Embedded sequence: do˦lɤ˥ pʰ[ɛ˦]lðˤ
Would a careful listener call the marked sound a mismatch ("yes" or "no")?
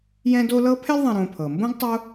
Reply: no